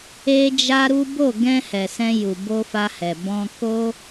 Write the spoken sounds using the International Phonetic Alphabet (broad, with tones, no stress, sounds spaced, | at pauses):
e˦ d͡ʒ a˦ ɾ u˦ b o˦˨ ɡ ɛ̃˧ h ɛ˨ s ɛ̃˧ j u˨ b o˧ f a˧ h ɛ˨ b ɔ̃˧ k o˧